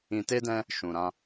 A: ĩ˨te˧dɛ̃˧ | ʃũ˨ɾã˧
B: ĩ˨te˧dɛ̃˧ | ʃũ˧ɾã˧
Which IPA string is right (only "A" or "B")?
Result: A